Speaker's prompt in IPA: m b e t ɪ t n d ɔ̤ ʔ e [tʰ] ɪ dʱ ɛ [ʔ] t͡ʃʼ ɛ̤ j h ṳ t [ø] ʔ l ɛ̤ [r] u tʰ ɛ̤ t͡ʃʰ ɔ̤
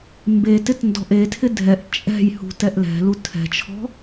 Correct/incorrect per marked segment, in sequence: correct, correct, incorrect, incorrect

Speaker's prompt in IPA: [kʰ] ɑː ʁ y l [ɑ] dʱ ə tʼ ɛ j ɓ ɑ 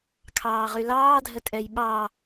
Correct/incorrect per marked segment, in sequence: correct, incorrect

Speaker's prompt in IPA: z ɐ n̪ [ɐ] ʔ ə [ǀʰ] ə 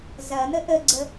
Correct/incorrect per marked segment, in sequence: incorrect, incorrect

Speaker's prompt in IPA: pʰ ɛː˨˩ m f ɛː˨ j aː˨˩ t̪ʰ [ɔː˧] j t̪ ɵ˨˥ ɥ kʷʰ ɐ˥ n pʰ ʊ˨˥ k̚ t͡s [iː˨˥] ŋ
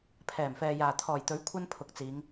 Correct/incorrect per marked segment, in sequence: incorrect, incorrect

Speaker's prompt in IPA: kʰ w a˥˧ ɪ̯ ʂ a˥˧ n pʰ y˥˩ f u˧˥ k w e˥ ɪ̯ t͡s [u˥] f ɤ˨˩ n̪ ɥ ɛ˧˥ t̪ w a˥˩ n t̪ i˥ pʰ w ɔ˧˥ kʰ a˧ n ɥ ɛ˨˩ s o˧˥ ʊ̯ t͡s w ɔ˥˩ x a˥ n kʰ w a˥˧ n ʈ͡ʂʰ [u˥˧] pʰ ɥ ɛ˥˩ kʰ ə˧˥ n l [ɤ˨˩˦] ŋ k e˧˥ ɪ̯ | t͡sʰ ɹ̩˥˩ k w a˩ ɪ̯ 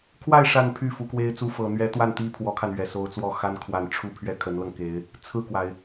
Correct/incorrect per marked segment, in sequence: correct, correct, incorrect

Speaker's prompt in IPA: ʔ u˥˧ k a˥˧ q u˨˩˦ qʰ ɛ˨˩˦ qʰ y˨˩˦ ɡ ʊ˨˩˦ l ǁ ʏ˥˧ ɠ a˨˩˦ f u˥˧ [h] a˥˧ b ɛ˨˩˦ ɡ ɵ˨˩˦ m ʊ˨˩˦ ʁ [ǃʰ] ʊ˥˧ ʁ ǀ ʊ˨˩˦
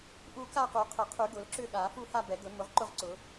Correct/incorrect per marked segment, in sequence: correct, incorrect

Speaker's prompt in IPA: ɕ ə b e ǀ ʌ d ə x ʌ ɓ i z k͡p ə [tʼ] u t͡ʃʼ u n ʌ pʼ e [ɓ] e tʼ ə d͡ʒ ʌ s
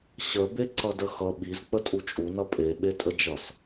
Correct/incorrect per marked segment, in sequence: correct, correct

